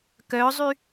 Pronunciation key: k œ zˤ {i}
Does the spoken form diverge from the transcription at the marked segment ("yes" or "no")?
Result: yes